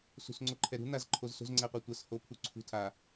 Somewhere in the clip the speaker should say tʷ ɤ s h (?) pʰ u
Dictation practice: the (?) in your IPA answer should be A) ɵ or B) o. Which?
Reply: B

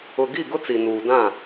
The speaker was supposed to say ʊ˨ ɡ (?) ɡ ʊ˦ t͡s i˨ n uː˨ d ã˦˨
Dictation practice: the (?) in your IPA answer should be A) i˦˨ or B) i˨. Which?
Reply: A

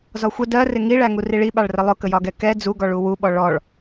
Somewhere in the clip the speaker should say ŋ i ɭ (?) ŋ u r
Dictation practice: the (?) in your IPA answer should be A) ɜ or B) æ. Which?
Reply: B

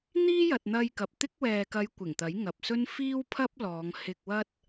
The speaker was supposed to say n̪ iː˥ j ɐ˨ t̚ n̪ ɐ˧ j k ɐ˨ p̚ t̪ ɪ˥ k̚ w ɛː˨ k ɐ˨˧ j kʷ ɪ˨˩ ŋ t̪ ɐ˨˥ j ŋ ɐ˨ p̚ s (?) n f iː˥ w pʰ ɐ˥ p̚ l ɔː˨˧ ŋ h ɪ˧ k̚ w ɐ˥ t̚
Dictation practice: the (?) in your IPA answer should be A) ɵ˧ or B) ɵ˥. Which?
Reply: B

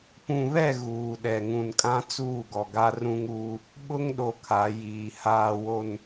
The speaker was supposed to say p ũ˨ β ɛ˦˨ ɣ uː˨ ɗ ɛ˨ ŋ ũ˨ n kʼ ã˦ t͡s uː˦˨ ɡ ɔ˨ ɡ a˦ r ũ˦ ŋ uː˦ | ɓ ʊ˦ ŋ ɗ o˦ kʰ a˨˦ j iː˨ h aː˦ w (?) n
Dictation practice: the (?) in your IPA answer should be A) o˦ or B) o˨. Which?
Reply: A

